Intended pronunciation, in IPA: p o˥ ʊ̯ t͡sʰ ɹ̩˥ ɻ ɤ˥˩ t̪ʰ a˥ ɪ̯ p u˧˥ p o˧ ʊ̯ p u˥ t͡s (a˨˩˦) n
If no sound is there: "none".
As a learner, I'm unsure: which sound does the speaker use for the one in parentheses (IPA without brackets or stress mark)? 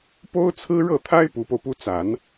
a˨˩˦